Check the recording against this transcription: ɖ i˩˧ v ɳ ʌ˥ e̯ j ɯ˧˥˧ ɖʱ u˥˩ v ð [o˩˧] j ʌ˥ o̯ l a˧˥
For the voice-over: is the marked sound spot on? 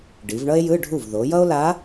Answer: yes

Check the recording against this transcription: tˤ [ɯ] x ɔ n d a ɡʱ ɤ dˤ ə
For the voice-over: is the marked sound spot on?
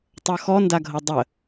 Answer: no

